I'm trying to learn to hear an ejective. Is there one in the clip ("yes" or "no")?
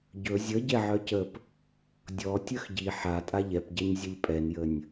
yes